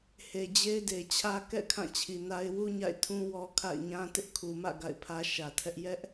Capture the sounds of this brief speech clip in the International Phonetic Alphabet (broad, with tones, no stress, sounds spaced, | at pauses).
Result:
h e˨ d͡ʑ e˦ ɪ̯ d e˨ t͡ɕʰ ä˦ k ɛ̰˦˨ kʰ ã˦˨ t͡ɕʰ i˨ n a˦ ɪ̯ w u˦ ɲ a̰˦˨ ɪ̯ tʰ ũ˦ w ɔ˦ kʰ a̰˦˨ ɪ̯ ɲ ã˦ t ɪ˦ ʔ kʰ u˨ m ä̰˦˨ ɡ a̰˦˨ ɪ̯ pʰ ä˦ ʃ ä˨ tʰ ɛ˦ ʔ j ɛ˦ ʔ